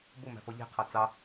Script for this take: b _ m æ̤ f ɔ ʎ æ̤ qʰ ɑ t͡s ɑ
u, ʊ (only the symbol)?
ʊ